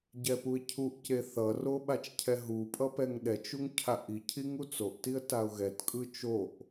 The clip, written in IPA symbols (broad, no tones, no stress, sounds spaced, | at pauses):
ɟ ɛ p u ɪ̯ cʰ u ʔ c e θ ʌ r o ɓ a t͡ʃ cʰ ɛ ɦ u pʼ ʌ p ɛ ŋ ɗ ɛ t͡ʃ u ŋ cʰ a ʔ i cʰ i ŋ u t͡s o ʔ t i ə̯ t a ʊ̯ ɣ ɛ t kʼ ɯ t͡ʃ o ʔ